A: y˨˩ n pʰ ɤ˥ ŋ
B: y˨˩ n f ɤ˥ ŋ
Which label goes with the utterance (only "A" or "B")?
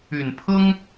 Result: A